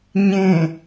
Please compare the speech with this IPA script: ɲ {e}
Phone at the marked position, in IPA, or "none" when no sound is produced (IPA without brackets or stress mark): ẽ